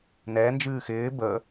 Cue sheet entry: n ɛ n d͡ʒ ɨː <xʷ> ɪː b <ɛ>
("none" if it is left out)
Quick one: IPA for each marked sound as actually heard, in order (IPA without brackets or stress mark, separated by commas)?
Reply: x, ə